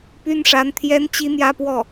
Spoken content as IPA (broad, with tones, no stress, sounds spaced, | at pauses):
p y˥ n ʂ a˧˥ n t̪ʰ j ɛ˥ n t͡ɕ i˥ n̪ j ä˥ p w ɔ˥˩